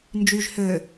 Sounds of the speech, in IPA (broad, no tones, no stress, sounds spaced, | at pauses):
n d͡ʒ y ʒ h øː